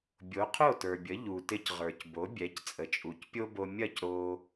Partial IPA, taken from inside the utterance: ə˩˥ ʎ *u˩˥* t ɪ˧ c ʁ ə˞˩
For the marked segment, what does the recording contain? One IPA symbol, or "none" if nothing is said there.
u˩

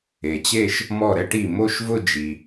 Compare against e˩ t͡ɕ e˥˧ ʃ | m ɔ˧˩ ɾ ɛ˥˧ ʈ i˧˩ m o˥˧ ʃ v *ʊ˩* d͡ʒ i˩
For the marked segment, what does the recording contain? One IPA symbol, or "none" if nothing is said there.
ʊ˥˧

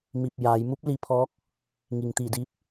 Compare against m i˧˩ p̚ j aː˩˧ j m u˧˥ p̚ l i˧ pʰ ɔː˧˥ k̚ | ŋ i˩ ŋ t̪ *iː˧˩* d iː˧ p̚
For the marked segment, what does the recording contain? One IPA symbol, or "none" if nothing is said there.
iː˧˩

